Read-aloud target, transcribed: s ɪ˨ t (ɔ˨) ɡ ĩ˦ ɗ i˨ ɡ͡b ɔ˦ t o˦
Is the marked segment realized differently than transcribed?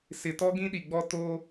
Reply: yes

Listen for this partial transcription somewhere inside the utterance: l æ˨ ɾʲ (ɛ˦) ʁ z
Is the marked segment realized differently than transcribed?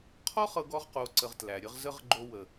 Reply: yes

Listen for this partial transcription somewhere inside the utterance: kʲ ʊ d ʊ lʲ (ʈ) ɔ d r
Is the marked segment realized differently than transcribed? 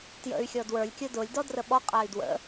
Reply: yes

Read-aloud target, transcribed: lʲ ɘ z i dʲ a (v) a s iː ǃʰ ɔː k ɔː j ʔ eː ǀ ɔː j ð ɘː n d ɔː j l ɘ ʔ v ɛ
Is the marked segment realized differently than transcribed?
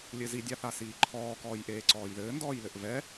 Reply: yes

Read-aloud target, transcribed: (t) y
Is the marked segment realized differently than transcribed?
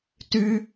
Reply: no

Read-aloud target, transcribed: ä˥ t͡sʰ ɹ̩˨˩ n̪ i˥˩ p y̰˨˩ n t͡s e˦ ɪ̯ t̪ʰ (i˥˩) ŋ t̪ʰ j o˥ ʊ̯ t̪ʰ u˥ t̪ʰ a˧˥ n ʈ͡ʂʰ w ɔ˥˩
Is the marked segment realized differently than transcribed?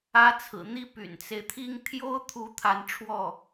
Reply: yes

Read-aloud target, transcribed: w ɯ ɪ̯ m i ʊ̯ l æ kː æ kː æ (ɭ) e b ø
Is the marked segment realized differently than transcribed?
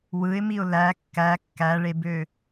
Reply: no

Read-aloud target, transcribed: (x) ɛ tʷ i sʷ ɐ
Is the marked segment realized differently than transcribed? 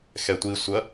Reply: no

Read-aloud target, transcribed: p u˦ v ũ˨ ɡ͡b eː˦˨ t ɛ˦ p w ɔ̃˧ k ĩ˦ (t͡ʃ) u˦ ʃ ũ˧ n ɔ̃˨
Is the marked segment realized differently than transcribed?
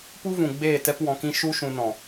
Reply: yes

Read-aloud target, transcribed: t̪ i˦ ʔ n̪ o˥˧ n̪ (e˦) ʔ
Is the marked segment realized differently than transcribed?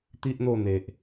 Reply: yes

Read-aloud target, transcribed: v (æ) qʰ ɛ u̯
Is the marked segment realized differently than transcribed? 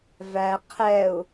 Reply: no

